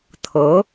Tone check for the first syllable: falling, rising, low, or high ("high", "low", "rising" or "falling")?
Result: rising